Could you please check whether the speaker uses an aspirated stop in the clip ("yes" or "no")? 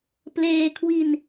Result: yes